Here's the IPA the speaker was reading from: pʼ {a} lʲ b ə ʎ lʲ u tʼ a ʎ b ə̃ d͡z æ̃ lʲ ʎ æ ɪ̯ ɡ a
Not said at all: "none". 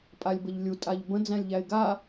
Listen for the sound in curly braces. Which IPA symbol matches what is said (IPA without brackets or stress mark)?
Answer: a